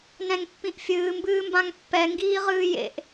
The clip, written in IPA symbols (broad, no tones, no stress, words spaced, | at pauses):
nɛ̃ŋpːĩʔfʲɨː mbɨːmbãŋpːɛ ŋɡiːʁɨːjḛʔ